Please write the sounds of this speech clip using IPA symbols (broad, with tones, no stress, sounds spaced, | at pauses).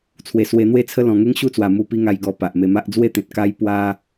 t͡sʰ w e˨˩ s w e˧ n̪ w e˦ t͡sʰ ə˦ l ɔ̃˨˩ ŋ e˦ ŋ ɕ u˦ t͡s w a˨˩ m u˧ p i˦ ŋ a˧ j ɡ ɔ˧ p a˨ ʔ m e˧ m a˦ ʔ d͡z w e˦ t̪ ẽ˨ t̚ k a˦ j p w a˦